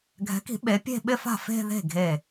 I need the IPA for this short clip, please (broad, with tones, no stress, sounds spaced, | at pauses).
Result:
ɡʱ ɛ̤˩˥ k i̤˨˩˦ ɓ e˩˥ pʲ e̤˥˧ ɓ ɪ˥˧ f a̤˥˩ f e̤˥˧ ð e̤˥˩ ɡʱ e˥˩